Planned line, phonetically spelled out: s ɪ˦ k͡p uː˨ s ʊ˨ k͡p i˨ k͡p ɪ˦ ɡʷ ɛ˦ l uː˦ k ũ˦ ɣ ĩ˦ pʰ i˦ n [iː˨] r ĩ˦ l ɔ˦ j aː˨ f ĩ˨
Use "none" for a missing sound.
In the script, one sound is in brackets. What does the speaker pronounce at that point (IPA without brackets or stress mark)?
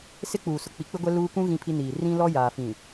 iː˨